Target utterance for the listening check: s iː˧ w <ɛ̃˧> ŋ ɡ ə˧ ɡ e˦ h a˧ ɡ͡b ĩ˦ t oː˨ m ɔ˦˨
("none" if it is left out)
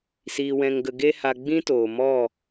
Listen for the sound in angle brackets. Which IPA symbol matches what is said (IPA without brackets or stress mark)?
ɛ̃˧